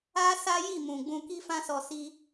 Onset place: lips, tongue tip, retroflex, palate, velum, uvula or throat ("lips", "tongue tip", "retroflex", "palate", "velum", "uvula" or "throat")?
tongue tip